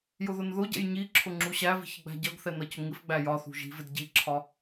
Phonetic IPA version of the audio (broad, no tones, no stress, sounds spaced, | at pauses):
j ʊ ð ʊ n ð ʊ ɟ ɛ̰ j ɲ i ǁʰ ʊ ŋ͡ǁ u ɕ æ v i̤ ç ɪ ɡ͡b æ̤ ɟ ʌ ɡ θ ɛ n ʌ c ʊ ŋ ɪ f ɡ͡b æ j ɒ θ ṳ ʒ i̤ v ɪ d ɟ i ǁʰ ɒ